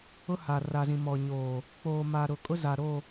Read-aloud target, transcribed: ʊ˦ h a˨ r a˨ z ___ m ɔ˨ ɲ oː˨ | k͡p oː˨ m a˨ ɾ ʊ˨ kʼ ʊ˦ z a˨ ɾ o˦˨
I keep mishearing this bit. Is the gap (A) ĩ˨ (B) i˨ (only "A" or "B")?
A